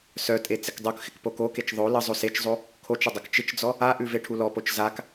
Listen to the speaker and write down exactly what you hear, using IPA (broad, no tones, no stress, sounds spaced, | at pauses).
s œ tʼ e t͡s ɪ k dˤ o k x ɪ k p o k o k e t͡ʃ ðˤ o l ə zˤ o s e t͡ʃ zˤ o | kʰ o t͡ʃ ə dˤ ɐ k t͡ʃ ɪ t͡ʃ d͡z ɔ | a ʔ ʉ v e ʈʰ u l ɔ p o t͡ʃ z a k